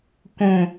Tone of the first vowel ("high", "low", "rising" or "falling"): falling